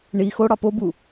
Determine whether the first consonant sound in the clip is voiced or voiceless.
voiced